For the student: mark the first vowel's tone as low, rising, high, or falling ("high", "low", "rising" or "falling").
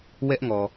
high